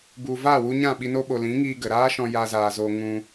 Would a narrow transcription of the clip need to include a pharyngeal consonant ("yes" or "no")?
no